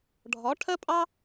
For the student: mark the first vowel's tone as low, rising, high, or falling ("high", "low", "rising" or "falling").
rising